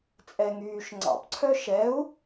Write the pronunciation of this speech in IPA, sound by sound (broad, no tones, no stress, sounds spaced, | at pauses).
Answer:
t͡sʼ ɛ ŋ yː ʃ ŋ͡ǀ ɑ̰ p ǀʰ œ ʃ ɛ u̯